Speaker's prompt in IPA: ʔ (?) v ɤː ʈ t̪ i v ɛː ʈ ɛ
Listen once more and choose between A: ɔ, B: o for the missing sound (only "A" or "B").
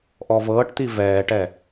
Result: A